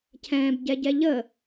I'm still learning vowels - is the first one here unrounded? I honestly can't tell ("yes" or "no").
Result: yes